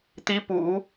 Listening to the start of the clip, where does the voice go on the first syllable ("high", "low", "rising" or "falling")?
rising